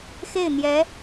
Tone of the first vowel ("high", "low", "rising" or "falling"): falling